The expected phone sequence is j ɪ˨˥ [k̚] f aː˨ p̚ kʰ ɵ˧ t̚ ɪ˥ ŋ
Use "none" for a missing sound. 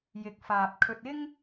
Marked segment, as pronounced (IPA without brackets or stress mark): k̚